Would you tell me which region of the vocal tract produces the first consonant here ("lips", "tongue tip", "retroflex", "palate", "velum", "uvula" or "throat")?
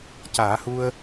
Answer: palate